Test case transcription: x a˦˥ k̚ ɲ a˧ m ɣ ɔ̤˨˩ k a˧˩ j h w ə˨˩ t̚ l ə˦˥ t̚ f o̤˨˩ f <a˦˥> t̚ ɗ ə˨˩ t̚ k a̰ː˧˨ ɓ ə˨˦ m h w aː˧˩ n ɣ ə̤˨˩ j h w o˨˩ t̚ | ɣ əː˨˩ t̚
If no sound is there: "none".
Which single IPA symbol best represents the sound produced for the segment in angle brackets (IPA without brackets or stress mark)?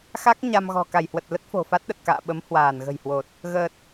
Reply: a˦˥